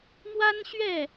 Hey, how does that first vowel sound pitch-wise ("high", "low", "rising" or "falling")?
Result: high